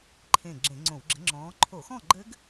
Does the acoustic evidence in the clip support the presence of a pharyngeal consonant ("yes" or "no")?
no